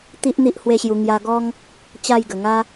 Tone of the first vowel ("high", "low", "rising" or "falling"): high